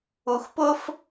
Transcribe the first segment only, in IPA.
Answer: u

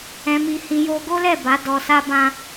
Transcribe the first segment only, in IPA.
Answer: ɛ̃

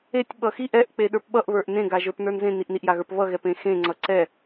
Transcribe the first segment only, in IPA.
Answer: e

